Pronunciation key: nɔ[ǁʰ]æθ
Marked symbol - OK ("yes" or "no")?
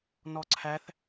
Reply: no